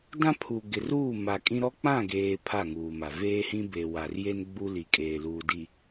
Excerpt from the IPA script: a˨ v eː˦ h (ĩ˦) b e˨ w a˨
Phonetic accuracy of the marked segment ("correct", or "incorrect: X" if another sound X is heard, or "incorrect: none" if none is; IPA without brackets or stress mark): correct